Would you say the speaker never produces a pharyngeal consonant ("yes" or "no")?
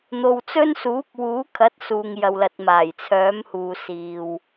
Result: yes